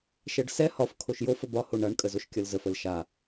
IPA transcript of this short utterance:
ʃɛɖsɛ hɒf kʰoʃjofə bɒho ɳaɳkʼə zoʃkʲɒlzəf əlʃa

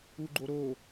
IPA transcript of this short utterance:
uɡ͡ǃoɾo

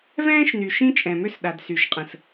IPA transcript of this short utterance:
vɛ̃ː˦ʃny˨ ʃĩ˦t͡ʃʼɛ̃˨mø˦s ɗa˨dsy˨ʃqʼə̃˨s

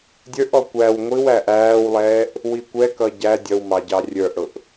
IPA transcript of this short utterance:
dʲə˞ʔɔ kʷæw ŋʷiw æʔæːwlˠɛːʔ | wikʷɛkʌ ɟæ dʲʌwmɑ ɟɑrʲə˞ʔɽʊʔ

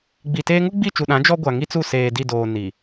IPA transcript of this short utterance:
ɡ͡bi˨teː˦ ŋu˦ɡ͡bi˦˨t͡ʃu˨ɗã˨˦ d͡ʒɔ˦ɡʷa˨ŋi˦t͡su˦˨ seː˨di˦˨doː˨ ni˨

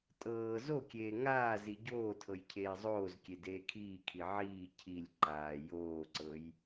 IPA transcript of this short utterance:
tʼɤː zokʲeː ŋaː ziɟoːtʰɤj cʰeːzˤoːzkʲe deːkʰiːkʰi ʕiː cʰilʲ ǃaː joːǀɤj

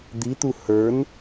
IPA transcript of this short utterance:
d̪it̪u hə˞n

